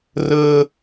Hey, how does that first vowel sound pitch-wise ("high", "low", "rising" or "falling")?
low